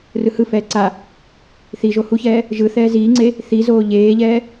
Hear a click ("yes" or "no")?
yes